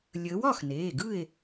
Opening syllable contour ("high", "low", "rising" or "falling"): rising